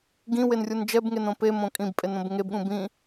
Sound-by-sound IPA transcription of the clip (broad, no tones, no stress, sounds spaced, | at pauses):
ɡ ĩ w e n rʲ u n d͡ʒ ɛ b ŋ e n õ p e m õ kʼ ĩ b pʼ e n õ b ŋ e b ɠ ũ b ĩ